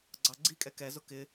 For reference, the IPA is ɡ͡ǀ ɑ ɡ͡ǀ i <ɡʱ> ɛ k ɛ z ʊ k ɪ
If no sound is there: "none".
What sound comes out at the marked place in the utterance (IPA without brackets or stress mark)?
kʼ